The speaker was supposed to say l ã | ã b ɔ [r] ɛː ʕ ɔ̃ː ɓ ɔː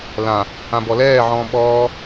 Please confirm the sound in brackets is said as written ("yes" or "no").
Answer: no